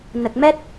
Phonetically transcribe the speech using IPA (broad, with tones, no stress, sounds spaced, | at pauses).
n ə˨˩ k̚ m ɛ˦˥ t̚